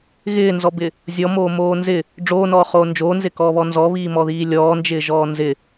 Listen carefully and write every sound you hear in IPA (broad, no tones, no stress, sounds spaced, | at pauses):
ɣ ɪː n z ɔ b ɪ | zʲ ɔ m oː m oː n z ɪ | ɖ͡ʐ oː n ɔː χ oː n d͡ʒ oː n z ɪ k ɔː β ɔ n z ɔ β iː m ɔ ð iː lʲ ɔː n d͡ʒ ɪː ʒ ɔː n z ɪ